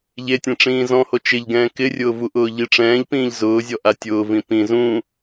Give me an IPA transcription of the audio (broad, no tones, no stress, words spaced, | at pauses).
ʎetʲɛ̃ ʈ͡ʂĩːzɔ̃ho t͡ʃɪʎɡɛ̃ː kɪrʲʊːvu ʔʊːʎiʈ͡ʂɛ̃ːʎpĩːʎ zʊːzʲɔ ʔatʲʊː vĩpĩ zũ